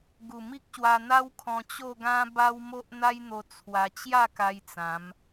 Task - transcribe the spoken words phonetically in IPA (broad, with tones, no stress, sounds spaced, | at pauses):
ɡ u˨˩ m i˦ k̚ ɕ w a˧ n̪ a˦ w kʰ ɔ̃˧ t͡ɕ o˥˧ ɡ ã˦ b a˦ w m o˦ ʔ n̪ a˦ j n̪ o˧ t͡sʰ w a˧ t͡ɕ j a˥˧ k a˧ j t͡s ã˨˦ m